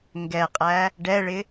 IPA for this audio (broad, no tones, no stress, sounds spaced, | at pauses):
ŋ ɡ ɛ qʼ æ | ɖ ɛ ɭ ɪ